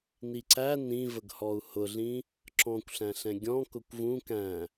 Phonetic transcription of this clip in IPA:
n i ǀ æ n ĩ v ə ɡ h ɔ u̯ h ʊ ɮ ĩ | ǁ ɔ̃ kʷ ɬ æ̃ ɬ ɛ̃ ɡʲ ɔ̃ k ʊ kʷ v ũ k æ̃

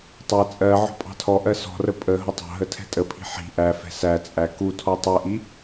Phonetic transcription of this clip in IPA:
tˤ æ t͡sʼ ɜ ʕ ɔ̤ pʼ ɑ̤ tʰ ɔ ʔ ɜ s ɔ̤ r ə pʼ ə ɦ ʊ tˤ ɑ̤ ɦ ə tʰ ɛ̤ tʼ ə pʰ i̤ ħ i̤ ʔ æ f ɛ̤ s æ t͡sʼ æ k u tʰ ɔ tˤ ɛ ʔ i

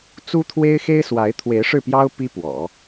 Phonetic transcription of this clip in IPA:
t͡s u˥ t̪ʰ w e˥ ɪ̯ x e˥ ɪ̯ s w a˧˥ ɪ̯ t̪ʰ w e˧˥ ɪ̯ ʂ ɻ̩˥˩ p j ɑ˥ ʊ̯ p i˥ p w ɔ̰˨˩˦

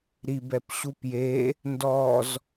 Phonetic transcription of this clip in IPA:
ɾ i b ɛ p ɕ u p j e | n d ɔ z

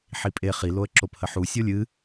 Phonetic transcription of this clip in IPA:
ħ i pʼ e χ i l o ə̯ ǁ o p h ə ħ u sʲ o lʲ ɨ

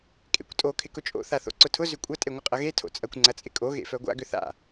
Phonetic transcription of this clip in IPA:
kʼ ḛ kʷ tʼ o kʰ ɪ k ʊ t͡ʃʼ o̰ θ a θ o̰ ǀ ʊ tʰ ʊ z ʏ kʷʼ ɐ tʼ e ŋʷ ɪ qʼ ɐ ɣ e tʰ o̰ t͡sʼ ɐ kʷ ŋ͡ǀ ɐ t͡sʼ ɪ kʼ o ɣ ḛ f œ ɡʷ a̰ ɡ ʏ θ a̰

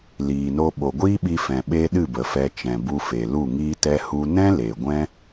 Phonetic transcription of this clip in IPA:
l iː˨ n o˧ ɓ o˨ ɡʷ iː˦ ɓ i˧ f ɛ̃˨ ɓ e˦ ɗ ɨ˦˨ b ə˨ f ɛ˧ t͡ʃ ɛ̃˨ b u˧ f e˨ l u˦˨ ŋ iː˦ t ɛ˦ h u˧ n ɛ̃˦ l e˨ ɡʷ ɛ̃˦

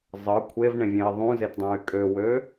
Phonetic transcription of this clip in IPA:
zˤ ɤ kʷʰ e v ɳ ẽ vʲ ẽ i̯ ðˤ ũ z e t dˤ ũ y̯ kʼ ø w ø

